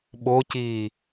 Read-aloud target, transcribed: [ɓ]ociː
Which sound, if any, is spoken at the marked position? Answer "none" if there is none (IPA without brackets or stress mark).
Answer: ɓ